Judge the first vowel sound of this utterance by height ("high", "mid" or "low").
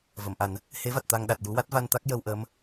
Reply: mid